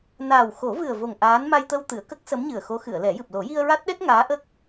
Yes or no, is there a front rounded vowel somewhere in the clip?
no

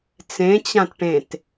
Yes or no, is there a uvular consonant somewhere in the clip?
no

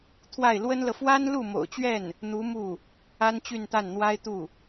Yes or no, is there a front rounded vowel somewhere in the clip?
yes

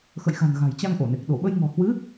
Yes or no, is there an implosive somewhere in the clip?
yes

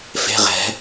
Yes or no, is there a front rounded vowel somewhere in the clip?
no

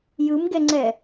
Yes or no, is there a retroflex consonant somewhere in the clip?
no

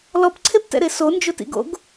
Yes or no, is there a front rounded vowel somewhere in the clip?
no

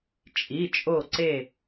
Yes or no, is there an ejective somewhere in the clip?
yes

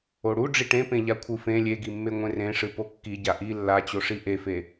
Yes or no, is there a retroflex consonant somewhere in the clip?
yes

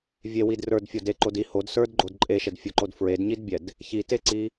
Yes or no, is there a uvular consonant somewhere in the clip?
no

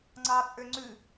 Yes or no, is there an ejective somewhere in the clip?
yes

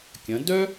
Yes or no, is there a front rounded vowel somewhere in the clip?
yes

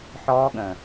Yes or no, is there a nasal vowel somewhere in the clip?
yes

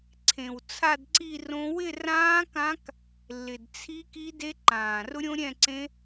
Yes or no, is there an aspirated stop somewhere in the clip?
yes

